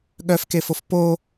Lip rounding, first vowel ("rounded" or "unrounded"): rounded